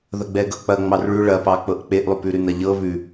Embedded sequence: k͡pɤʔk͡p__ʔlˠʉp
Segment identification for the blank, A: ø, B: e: B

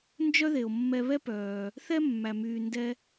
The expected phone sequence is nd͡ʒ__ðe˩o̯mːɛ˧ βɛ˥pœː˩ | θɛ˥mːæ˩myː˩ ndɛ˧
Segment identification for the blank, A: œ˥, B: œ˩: A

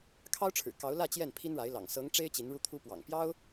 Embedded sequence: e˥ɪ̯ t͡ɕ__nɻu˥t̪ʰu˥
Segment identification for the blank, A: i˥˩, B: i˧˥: B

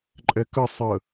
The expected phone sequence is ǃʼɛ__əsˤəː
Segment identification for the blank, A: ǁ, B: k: B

